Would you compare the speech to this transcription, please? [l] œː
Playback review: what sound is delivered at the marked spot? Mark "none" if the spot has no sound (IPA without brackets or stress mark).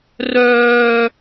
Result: r